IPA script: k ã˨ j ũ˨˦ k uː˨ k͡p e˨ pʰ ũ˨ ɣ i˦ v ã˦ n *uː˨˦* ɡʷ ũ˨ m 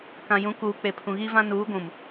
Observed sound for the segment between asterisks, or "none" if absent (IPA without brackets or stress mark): uː˨˦